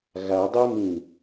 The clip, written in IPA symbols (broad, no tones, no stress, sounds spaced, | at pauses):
ɣ a dˤ ɛ m ĩ